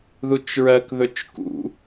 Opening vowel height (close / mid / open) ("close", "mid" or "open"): close